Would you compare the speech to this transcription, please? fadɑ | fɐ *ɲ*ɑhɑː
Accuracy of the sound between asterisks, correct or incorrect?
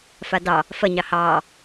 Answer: correct